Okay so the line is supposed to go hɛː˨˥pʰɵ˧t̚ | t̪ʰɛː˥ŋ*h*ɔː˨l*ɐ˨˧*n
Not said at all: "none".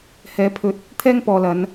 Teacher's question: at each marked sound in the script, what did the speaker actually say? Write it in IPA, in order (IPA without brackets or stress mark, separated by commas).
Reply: p, ɐ˨˧